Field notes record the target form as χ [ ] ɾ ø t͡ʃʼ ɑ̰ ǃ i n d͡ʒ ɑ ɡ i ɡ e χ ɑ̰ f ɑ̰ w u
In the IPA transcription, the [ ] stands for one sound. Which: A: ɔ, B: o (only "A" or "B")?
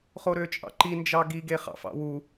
B